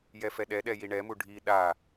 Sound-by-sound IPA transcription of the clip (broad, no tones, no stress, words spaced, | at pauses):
jɛfɛɗɛɗɛ jiɳɛmu ɖʱi ɗa